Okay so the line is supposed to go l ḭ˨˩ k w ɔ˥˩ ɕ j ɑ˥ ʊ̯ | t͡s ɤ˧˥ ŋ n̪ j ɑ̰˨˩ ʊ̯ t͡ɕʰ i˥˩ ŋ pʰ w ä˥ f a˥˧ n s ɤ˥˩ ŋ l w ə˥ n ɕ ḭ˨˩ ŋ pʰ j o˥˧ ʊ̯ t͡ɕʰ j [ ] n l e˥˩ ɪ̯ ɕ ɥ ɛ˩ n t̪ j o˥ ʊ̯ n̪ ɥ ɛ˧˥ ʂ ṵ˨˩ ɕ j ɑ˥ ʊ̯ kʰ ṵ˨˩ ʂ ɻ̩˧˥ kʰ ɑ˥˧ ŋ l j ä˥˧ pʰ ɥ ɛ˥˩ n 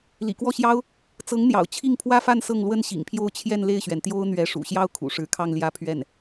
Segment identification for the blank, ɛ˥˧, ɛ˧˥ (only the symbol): ɛ˥˧